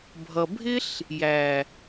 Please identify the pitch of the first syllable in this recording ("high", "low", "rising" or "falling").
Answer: low